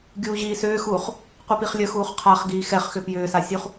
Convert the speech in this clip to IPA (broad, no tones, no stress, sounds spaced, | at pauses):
ɡʲ uː ʑ iː s ʏː x uː χ | qʷ i p i χ lʲ ə x uː χ qʰ a χ ɡ iː x ɛ χ x ʏ p j ʏː s a sʲ u χ